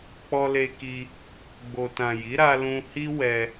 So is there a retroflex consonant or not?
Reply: no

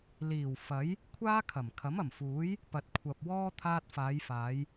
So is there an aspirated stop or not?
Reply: yes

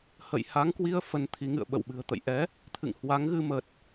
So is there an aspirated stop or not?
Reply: yes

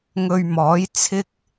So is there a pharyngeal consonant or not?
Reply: no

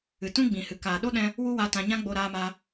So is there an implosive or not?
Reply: yes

